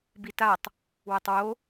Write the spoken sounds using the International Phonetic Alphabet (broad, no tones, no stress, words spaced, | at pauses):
bitatˤ | wətˤwo